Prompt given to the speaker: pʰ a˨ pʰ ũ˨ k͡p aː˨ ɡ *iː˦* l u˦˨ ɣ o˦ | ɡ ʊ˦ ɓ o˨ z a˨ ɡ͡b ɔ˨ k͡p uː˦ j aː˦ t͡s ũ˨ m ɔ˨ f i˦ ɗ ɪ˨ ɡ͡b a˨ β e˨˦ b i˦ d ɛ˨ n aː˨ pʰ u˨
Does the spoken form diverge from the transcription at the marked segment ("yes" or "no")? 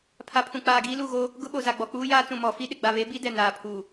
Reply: no